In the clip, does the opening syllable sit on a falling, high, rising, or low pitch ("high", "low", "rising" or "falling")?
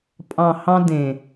low